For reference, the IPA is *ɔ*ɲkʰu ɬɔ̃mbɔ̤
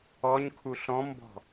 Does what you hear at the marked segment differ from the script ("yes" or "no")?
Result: no